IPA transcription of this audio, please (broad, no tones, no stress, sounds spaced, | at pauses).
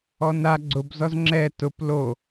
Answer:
ɔ n a ɡ͡ǀ ʊ b z ɔ z ŋ͡ǁ ɛ t ʊ p l o